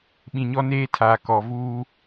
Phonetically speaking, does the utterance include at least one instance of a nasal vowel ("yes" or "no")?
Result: yes